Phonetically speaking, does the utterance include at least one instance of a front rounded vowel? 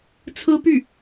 yes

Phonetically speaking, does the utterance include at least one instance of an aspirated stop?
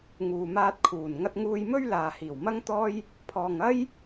yes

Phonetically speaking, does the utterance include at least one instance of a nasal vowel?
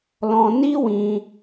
yes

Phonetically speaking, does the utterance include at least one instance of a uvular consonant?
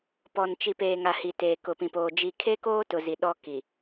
no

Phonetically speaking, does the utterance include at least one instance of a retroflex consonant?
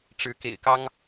yes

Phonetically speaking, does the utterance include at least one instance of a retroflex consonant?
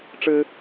yes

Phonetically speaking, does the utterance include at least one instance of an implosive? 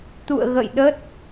yes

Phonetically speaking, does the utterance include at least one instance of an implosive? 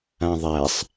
no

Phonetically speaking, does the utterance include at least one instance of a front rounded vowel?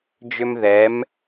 yes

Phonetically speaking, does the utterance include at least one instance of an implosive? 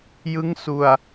no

